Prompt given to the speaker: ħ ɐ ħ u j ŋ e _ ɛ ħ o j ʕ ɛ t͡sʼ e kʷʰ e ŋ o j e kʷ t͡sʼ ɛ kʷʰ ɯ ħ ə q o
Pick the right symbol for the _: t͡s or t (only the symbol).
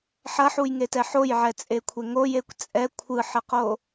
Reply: t